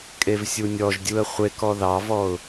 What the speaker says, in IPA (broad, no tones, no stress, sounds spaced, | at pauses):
kʼ e v sʲ u nʲ ɔ ʒ dʲ u ə̯ χʷ e k ɔ ð ɑ v ɔ ʊ̯